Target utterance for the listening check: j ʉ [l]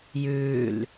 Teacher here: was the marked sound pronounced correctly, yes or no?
yes